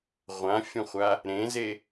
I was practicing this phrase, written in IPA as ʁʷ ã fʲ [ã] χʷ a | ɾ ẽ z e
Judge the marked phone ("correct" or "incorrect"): incorrect